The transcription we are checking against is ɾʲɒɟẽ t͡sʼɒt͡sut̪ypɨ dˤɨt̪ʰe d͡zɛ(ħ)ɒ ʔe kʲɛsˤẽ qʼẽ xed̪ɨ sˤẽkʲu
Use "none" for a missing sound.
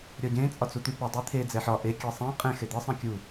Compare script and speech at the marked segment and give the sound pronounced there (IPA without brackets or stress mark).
ħ